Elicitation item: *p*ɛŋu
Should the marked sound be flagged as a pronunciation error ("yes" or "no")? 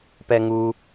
no